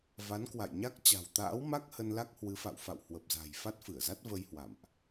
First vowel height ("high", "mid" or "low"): low